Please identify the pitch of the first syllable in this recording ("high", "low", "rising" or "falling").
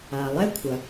low